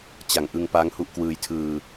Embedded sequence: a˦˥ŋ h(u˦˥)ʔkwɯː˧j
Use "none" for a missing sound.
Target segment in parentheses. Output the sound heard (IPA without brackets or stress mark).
u˦˥